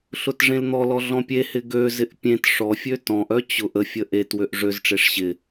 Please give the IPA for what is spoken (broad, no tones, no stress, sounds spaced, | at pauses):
ɬ ʊ t ʐ ẽ l n̪ ɔ l ɔ ɮ ɔ̃ pʲ e h ɪ ɡ ø z ɪ ʔ pʲ ẽ t ʂ ɔ fʲ ø t ɔ̃ ʔ œ t͡ɕ ʊ ʔ ə fʲ ə ʔ e t w ø ʔ ʐ ø z ʈ͡ʂ e ʂ ɕ ɪ